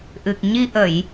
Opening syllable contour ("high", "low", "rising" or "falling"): low